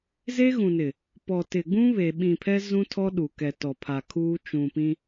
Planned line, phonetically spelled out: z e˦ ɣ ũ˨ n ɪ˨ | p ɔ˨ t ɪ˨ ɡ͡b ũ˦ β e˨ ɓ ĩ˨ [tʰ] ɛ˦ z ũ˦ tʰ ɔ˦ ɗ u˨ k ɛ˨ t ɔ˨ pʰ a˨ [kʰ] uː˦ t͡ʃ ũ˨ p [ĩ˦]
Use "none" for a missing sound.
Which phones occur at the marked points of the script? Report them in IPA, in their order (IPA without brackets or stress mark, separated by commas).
pʰ, kʰ, ĩ˦